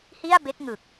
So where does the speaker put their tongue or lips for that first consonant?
throat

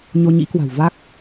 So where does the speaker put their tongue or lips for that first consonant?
palate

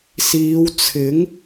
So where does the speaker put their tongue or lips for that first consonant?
tongue tip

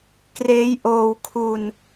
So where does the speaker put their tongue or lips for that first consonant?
velum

